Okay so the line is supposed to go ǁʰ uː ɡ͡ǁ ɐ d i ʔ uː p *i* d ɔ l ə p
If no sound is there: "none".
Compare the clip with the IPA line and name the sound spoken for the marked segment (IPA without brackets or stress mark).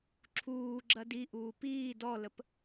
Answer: iː